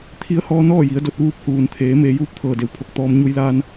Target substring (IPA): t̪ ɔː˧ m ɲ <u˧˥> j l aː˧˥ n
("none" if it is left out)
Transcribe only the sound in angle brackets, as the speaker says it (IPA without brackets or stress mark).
u˧˥